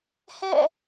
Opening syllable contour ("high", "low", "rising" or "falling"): falling